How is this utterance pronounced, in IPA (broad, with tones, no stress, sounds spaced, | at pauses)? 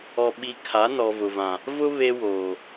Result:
ɔ˨ ɓ i˨ kʰ a˨˦ n ɔ˨ v ʊ˨ v ã˨ | v ʊ˦ β e˦ w oː˨